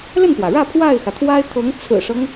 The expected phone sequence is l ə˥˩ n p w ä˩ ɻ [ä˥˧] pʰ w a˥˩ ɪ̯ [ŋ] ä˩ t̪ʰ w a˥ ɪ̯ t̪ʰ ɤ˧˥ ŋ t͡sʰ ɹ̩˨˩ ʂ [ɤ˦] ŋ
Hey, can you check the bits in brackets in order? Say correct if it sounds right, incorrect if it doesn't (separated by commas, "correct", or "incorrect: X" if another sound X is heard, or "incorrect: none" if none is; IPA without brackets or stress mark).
correct, incorrect: x, correct